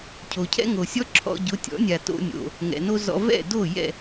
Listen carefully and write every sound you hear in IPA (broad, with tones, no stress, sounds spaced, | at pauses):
cʰ o˩ cʰ ɛ̰˥ ŋ o˩ sʲ ɔ˥ ǁʰ ɔ̰˧ ɟ ʊ˩˥ tʲ ɔ̰˩˥ nʲ a˩ t o̰˧ nʲ o̰˩ | ŋ ɛ̰˩ n o˥ z ɔ̰˧ v ɛ̰˥˩ d o˥˩ j ɛ̰˥˩